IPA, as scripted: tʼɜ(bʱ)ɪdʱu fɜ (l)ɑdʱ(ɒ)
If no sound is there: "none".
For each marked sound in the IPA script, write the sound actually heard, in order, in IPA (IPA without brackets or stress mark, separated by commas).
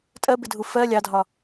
b, lʲ, ɒ